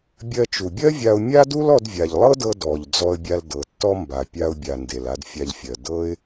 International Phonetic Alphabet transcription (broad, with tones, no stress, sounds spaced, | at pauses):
bʲ ɜ˧ t͡ʃ u˩ bʲ ɜ˥ vʲ a˧ ʊ̯ mʲ a˥ d u˥ l ɔ˧ d vʲ a˩ ʎ lˠ ɤ˥ d ɤ˧ d ɔ˩ ʎ d͡z ɔ˧ ə̯ bʲ a˧ l d ɤ˩ tː ɔ˥ m b a˩ pʲ a˧ ʊ̯ bʲ a˩ n d e˩ l a˧ d fʲ a˧ ʎ fʲ ɜ˩ d ɤ˥ ɪ̯